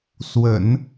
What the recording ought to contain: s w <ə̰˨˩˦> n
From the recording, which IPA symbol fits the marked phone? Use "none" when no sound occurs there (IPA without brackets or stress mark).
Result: ə̰˨˩˦